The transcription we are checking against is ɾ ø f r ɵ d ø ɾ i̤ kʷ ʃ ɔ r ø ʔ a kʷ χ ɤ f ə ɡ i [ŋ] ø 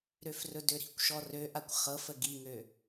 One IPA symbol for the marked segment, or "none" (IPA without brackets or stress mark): ŋ